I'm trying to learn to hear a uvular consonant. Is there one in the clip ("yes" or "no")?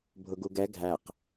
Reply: yes